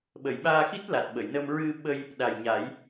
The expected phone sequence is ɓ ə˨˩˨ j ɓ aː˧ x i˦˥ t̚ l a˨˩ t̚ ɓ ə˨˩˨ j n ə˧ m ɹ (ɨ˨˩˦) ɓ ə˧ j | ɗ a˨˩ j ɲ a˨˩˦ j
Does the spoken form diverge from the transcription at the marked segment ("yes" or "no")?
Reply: yes